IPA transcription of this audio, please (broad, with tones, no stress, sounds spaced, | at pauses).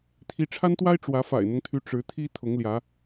t̪ʰ i˨˦ ʈ͡ʂʰ a˦ n t̪ w a˦ ɪ̯ ʈ͡ʂ w ä˨˦ f a̰˨˩ ɪ̯ n̪ ʊ˦ ŋ t̪ʰ y˨˦ ʈ͡ʂ ɻ̩˨˦ t̪ʰ i˦ t̪ʰ ʊ˨˦ ŋ l j ä˨˦